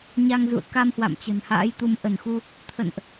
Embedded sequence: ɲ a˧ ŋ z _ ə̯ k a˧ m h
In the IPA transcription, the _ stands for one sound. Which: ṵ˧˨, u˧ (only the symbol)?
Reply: ṵ˧˨